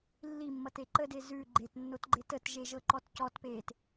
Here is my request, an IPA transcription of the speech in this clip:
lː i mː ʌ t e ǃ ə d e z ʉ ɡ͡ǃ e t nː o t ɡ͡ǃ e t ə t ʒ e ʒ ɤ ǃ ɔ t c ɔ t p eː t

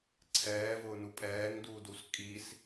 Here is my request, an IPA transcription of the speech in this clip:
ǀʰ ɛː v ʊː n u pʼ ɛː ŋ d uː d u s kʼ i s

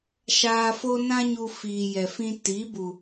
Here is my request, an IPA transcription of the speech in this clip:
ʃ aː˧ f o˦ n ã˦ ɲ u˧ f iː˨ j ɛ˨ f ĩ˧ t i˨˦ b u˨

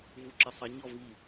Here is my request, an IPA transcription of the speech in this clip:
v u ǁ ə sˤ ʌ ɲ ɔ v i

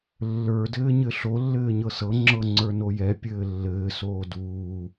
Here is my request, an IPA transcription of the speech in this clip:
lː ə˞ d ɘː ɲ ɘ ɬ o lː ɘː ɲ ɤ s ɤ ŋ͡ǁ ɤ ŋ͡ǀ ə˞ n o j ɛ pʲ ɘː lː ɘː s oː d uː

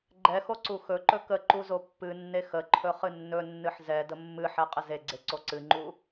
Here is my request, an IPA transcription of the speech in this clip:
ɡ͡ǃ ɛ x o ǀ u x ɵ ǃ ɵ k ə ǃ u z o pː ɨ nː e x ə ǃʰ ɵ χ ɨ nː ɵ nː ɨ ħ z ɛ d ə mː ɨ ħ ɛ qʼ ə z e ɡ͡ǀ e ǀ o ǀ ɨ ŋ͡ǃ u

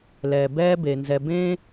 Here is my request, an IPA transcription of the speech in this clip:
l ɛː˩ b ɛː˦ b e˩ n z ɛ˨ b ẽː˥

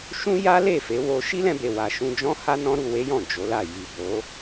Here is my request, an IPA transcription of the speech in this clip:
ʃ ũ˦ j a˦ l e˦˨ f e˨˦ w o˧ ʃ i˦ l ɛ̃˧ b e˨ w a˨ ʃ ũ˧ d͡ʒ ɔ̃˦ h a˦ n ɔ̃˦ ɾ u˧ w e˦ j ɔ̃˦˨ d͡ʒ o˨˦ l a˦˨ j i˨ b o˨˦

